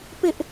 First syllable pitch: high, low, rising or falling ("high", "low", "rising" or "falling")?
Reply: high